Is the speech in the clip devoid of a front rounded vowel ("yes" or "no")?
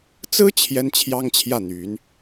no